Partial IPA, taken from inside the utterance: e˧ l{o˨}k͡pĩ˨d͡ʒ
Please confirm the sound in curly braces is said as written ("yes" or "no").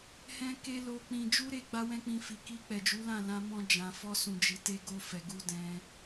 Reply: yes